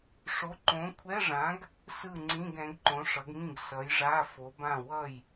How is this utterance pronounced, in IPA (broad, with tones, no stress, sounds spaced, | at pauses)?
ʂ o˨˥ ǃ õ˨˥ kʷʰ ɛ˧˥˧ ʐ ã˨˥ ɡ | s ɯ˥˨ ŋ͡ǀ ĩ˧˥˧ ɡ ɛ̃˨˥ ɡ ǃ õ˨˥ ʂ ʌ˨˥ ɡ ŋ ĩ˥˨ ɡ s ʌ˨˥ j ʐ a˧˥˧ f o˨˥ b ã˥˨ w ʌ˥˨ j